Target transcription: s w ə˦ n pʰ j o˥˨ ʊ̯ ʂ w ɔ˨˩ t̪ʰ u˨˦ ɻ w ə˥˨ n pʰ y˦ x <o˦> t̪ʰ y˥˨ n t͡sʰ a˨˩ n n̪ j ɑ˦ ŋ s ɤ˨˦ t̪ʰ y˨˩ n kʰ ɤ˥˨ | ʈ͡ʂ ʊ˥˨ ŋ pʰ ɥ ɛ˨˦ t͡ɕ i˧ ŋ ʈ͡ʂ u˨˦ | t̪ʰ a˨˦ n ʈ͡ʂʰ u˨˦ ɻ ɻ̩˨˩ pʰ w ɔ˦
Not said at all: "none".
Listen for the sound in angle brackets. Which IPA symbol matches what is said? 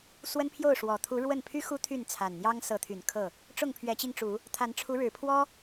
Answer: u˦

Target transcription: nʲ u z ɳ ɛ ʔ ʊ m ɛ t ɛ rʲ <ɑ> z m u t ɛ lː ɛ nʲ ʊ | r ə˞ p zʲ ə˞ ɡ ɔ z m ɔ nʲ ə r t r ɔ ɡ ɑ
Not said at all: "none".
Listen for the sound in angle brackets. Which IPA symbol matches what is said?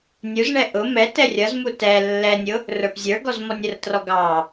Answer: ʌ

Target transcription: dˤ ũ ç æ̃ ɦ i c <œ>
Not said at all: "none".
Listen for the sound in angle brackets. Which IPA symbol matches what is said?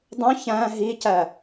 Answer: æ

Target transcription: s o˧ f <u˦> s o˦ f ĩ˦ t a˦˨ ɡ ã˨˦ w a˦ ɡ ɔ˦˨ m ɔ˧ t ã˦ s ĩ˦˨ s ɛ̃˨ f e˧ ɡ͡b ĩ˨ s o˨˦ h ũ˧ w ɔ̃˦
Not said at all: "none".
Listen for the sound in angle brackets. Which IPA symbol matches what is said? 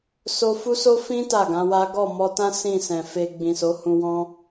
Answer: u˦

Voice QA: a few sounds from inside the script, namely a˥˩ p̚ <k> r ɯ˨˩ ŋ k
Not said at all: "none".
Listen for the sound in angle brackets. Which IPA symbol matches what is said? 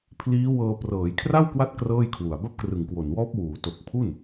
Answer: k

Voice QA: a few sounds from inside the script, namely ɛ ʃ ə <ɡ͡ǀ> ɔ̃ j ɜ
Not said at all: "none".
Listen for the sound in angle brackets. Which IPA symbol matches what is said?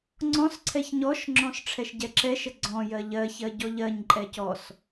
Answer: ɡ͡ǀ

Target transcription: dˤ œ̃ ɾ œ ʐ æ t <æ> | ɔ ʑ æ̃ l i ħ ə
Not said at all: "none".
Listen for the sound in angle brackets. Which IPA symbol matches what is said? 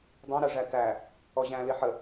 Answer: æ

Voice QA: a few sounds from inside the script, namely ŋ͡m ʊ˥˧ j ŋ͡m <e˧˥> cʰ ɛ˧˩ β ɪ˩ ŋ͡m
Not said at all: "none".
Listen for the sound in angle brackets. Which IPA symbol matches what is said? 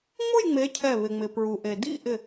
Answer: e˧˥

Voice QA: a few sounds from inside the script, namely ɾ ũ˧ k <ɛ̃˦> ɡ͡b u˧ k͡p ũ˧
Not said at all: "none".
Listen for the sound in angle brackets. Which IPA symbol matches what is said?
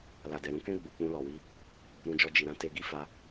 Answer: ɛ̃˦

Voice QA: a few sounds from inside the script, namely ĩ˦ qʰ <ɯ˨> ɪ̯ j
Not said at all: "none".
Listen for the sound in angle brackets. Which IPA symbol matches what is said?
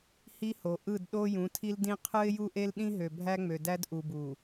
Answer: ɯ˦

